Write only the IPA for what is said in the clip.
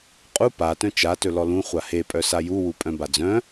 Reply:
qʼ u p a t œ̃ t͡ʃ a t ɵ l ɔ l ũ χʷ a h e pʼ œ s a j u w u pʼ œ̃ b a d͡z œ̃

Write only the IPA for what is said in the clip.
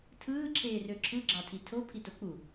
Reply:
tʰ ɯː ǁʰ eː r ø ǁʰ ɯ ɡ͡ǁ ɑ tʰ i tʰ o pʰ i t o k͡p u

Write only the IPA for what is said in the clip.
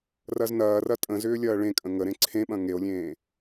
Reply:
r ɐ z n ɐː r ɐ tʼ ə̃ z ʏː lʲ ɐː ɭ ẽ kʼ ə̃ ŋ ə ɾ ẽ ǀʰ ẽ ɓ ɐ̃ ŋ e o̯ lʲ ẽː

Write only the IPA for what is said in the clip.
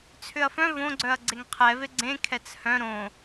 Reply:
t͡sʰ ʏ ɐ̯ f œ̃ v õ ɡ͡ǀ œ ɐ̯ ɡ͡ǀ e ŋ qʰ ɛ v e ɡ͡ǀ ẽ kʰ ɛ t͡s h œ̃ ɾ õ

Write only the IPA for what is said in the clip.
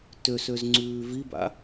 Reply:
t ø s ø z ŋ͡ǀ ʉː v i b a̰

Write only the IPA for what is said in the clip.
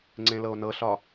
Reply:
ŋ͡ǀ ẽ l ɤ o̯ n ɤ ɬ ɒ

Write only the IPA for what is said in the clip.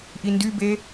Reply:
ʔ i n d y b e

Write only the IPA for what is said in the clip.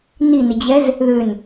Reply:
n i n ɪ d͡ʑ ɛ z | ð ʏ n

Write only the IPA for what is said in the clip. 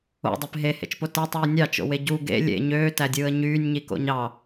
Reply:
o̰ dˤ e p ɦ e h ḛ t͡ʃ p o t æ tˤ w i nʲ ɑ t͡ʃ o̰ w e ɟ u ɡ ḛ lʲ ḛ ɲ øː t æ dʲ ɯː ə̯ ɲ yː nʲ ɲ i k o̰ ɲ ɑ

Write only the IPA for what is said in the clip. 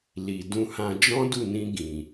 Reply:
l i˨ d ũ˧ h ã˧ d͡ʒ ɔ̃˦ d u˦˨ n ĩ˧ ɡ ĩ˨

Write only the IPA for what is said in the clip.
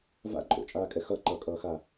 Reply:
v a̰ ǃʼ o̰ t͡ʃʼ aː kʼ ɛ x ʌ ǃ ʌ kʼ ʌː x a

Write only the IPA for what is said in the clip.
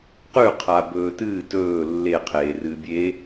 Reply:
q ʉ qʰ a b ɵː t ɨː t ɵː lː e qʰ eː r ɨː bʲ e

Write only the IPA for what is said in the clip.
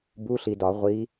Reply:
b u˧˥˧ ɬ i˨ d ɒ˨˩˦ ʁʷ iː˧˥

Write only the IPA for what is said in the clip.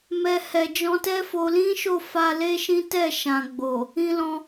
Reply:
m ɛ˧ h ɛ˨ d͡ʒ ɔ̃˧ t ɛ˦ f o˧ l ĩ˦ ʃ o˦˨ f a˧ l e˦ ʃ ĩ˦ t ɛ˦˨ ʃ ã˨ ɡ͡b o˨ | ĩ˧ l ɔ̃˧

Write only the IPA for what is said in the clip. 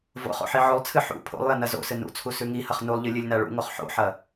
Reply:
v o̰ χ o̰ ħ i ʕ o lˠ t͡sʰ ɨ ħ ṵ pʰ o̰ lˠ j ɐ n ɐ z o̰ s ɨ n ṵ t͡sʰ u s ʉ ŋ i h ɐ χ n u lˠ ʎ ɨ lʲ ɨ lʲ n a ɭ ṵ ŋ o χ ħ o̰ ħ ɐ

